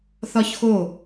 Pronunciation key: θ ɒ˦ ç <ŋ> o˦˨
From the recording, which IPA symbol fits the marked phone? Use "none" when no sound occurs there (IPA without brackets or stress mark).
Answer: x